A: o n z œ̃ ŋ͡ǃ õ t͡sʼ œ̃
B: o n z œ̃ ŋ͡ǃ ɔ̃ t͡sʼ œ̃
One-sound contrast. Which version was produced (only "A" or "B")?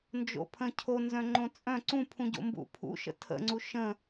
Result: A